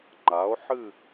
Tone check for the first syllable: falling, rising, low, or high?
rising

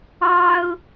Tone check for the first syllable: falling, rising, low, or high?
high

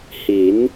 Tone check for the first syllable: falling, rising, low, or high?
rising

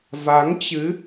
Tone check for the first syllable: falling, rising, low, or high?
rising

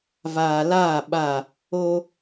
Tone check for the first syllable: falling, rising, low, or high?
low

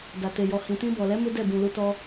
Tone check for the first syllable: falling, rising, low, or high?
low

